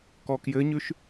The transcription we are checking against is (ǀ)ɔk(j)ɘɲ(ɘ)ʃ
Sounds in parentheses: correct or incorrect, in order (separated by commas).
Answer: incorrect, correct, incorrect